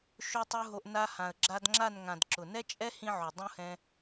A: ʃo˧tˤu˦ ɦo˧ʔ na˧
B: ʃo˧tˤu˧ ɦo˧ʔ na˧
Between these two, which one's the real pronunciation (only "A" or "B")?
B